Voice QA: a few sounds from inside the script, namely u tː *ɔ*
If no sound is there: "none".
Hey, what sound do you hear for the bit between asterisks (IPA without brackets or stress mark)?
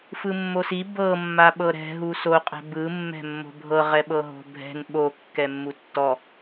ɔ